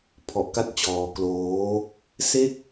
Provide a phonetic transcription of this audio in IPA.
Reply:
pʰ ɔ˨˩ ʔ k a˥˩ t̚ t͡ɕ ɔː˧ k l oː˦˥ | s e˥˩ k̚

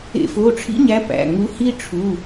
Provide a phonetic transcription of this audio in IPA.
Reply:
ḛ˧˩˧ f o˩˧˩ ʈ͡ʂʰ ḭ˦ ɲ æ˨˦ p æ̰˩˧˩ ŋ u˨˦ h i˦ ʈ͡ʂʰ u˩˧˩

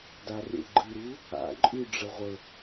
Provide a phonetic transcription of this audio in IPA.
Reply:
d a r ḛ ɡ͡ǃ ɨ ɾ u | a̰ ǃʼ ʉ ɖ͡ʐ ə ʁʷ ə

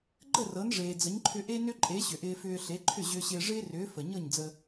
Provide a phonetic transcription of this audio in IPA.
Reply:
ɡ͡ǃ ə˥˩ r ɤ˩˥ n ʐ eː˩ d͡z ə˩˥ ɲ ǃʰ ʏ˧ ʔ e˥ n ʏ˥ ǃʼ e˩˥ ɕ ʏ˩ ʔ ɪː˧ f ʏː˧ ɬ e˩˥ ǃʰ ʏ˥˩ ʑ ʏː˧ ɕ ɪː˧ ʐ ɪː˥ r ʏː˩˥ f ə˩ ɲ ɤ˥˩ ɲ d͡z ə˧

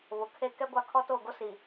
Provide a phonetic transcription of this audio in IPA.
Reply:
β ʊ˨ kʰ e˦ k ɛ˦ ɡʷ a˦ kʰ ɔ˦ t oː˦˨ ɡ o˦ s i˨

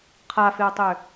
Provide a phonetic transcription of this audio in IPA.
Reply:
qʰ a f e o̯ tˤ ø

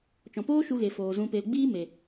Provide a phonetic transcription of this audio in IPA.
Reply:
t͡ʃ ɔ̃˨ p oː˦ ʃ u˧ ɣ e˨ f oː˨ z ũ˧ p e˧ l ɡ͡b iː˦ m e˨

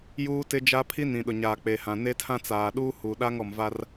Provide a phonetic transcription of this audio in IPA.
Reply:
j uː˦ t ɪ˦ d͡ʒ a˦ pʰ i˦ n ĩ˨ ɗ ʊ˨ ɲ a˨ k͡p e˨ h ã˨ n e˦ tʰ ã˦ t͡s aː˨ ɗ uː˦ h u˨ ɗ a˦ ŋ ɔ˨ m v a˦ r

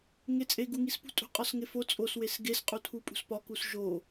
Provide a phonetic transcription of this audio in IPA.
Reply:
ŋ e t͡sʼ e ɡ u ŋ i s p ṳ tʼ ṳ qʼ ɒ s ŋ e f o t͡sʼ o s w e s ɡ e s qʼ u tʰ u pʼ ṳ s p ɒ k u s ʒ o

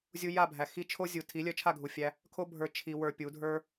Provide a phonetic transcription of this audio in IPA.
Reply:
zʲ u˧ j a˦˨ bʱ æ˨ x i˧ t͡ʃʰ o˦ zʲ u˨ tʰ i˨˦ lʲ œ˧ t͡ʃʰ a˦˨ ɡʱ u˨ fʲ æ˦ | kʰ o˦ bʱ ə˞˧ t͡ʃʰ i˧ w ə˞˧ pʲ u˨˦ dʱ ə˞˦

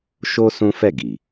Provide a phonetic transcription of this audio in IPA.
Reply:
ʃ o˦ s ũ˦ f ɛ˦˨ ɡ i˨

